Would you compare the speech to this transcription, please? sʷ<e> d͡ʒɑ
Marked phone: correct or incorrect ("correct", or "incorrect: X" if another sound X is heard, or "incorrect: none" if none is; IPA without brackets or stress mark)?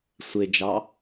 correct